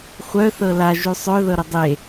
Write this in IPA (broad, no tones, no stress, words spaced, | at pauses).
χʷœ θɤla ʒʉsˤœ ðɤɾədˤe